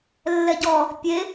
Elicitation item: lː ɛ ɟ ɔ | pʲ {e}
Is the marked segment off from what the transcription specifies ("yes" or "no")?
no